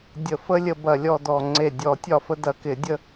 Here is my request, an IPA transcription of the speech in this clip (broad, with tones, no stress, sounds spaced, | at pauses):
dʲ ə˨˩˦ f ə˦ lʲ ə˦ b ɐ˧˩ lʲ ɔ˥˨ d ɔ˧˩ ŋ͡ǀ e˧˩ dʲ ɔ˨˩˦ tʲ ɒ˥˨ f ə˦ d ɐ˨˩˦ k ɪ˨˩˦ dʲ ə˦